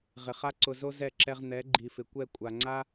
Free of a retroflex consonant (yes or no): yes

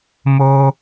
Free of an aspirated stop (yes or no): yes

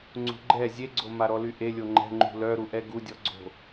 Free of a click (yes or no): no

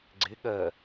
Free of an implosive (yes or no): no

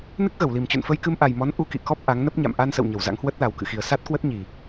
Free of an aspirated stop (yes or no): yes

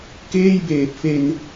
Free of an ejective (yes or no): yes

